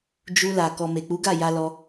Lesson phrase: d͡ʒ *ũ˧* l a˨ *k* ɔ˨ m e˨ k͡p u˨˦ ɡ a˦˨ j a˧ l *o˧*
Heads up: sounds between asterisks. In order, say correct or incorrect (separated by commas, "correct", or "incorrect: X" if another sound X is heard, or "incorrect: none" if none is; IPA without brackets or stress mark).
incorrect: u˧, correct, incorrect: ɔ˧